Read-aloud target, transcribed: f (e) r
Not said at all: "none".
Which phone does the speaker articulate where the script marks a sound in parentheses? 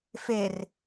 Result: e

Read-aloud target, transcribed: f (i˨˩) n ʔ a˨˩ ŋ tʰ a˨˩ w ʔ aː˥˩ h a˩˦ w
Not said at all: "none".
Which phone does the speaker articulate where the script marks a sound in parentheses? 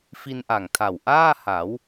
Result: i˧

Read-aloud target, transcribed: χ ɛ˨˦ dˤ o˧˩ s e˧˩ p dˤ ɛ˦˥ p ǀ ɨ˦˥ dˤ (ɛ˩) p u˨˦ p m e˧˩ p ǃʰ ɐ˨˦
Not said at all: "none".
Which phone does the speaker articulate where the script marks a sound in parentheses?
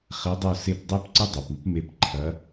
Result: ɛ˩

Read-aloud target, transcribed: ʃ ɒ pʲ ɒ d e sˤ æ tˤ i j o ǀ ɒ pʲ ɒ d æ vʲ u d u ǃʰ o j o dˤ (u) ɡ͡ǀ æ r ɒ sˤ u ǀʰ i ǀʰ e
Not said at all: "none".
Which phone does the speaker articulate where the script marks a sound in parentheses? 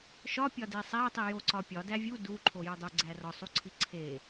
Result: u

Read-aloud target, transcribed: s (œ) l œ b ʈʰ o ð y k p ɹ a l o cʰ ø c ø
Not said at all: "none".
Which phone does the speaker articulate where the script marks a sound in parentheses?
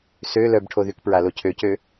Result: ø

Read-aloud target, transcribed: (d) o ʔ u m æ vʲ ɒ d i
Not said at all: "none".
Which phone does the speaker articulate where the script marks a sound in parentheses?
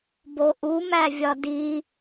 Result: b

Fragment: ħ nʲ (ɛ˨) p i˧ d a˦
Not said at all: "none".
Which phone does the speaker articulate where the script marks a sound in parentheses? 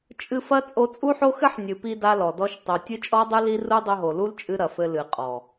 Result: ɨ˨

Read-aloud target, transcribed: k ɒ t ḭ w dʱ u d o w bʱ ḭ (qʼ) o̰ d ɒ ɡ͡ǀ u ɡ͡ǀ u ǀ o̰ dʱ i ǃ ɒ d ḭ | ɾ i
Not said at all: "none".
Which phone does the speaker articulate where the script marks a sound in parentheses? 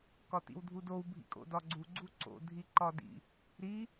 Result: kʼ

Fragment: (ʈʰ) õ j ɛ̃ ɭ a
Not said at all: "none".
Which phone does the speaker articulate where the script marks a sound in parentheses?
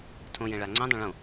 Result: tʰ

